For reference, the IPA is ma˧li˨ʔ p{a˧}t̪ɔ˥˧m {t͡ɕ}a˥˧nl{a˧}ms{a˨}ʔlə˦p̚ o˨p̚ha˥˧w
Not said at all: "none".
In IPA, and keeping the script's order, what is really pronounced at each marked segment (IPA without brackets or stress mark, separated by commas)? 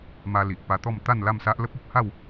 a˧, t̪, a˥˧, a˦